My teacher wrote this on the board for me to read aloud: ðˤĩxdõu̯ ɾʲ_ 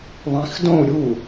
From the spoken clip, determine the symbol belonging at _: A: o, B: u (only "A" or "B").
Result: B